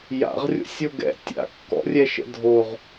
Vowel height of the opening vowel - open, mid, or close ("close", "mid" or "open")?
open